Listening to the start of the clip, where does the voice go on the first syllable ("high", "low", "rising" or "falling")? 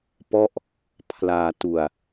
falling